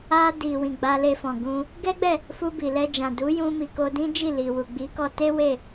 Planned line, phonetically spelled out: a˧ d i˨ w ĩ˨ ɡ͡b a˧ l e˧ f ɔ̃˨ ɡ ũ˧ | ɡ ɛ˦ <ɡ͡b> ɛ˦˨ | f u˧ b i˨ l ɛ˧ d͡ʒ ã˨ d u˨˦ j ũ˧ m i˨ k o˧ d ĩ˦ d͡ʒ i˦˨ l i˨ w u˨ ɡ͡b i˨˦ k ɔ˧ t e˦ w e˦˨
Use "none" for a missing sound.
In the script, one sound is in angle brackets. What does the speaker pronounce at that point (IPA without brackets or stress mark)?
ɡ͡b